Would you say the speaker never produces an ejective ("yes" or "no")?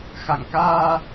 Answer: yes